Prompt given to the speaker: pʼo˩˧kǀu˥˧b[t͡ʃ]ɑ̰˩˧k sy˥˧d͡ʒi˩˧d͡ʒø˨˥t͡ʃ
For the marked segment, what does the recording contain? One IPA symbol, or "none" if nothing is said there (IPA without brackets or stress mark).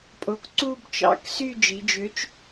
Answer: t͡ʃ